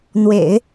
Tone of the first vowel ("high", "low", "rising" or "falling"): low